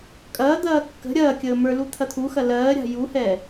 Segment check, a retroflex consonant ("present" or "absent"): absent